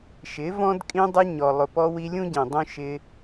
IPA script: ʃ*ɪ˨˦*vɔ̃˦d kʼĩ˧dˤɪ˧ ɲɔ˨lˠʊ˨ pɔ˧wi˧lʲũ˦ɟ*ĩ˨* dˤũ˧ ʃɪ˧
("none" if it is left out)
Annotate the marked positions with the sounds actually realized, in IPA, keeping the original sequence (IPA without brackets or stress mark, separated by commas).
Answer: ɪ˨˦, ĩ˨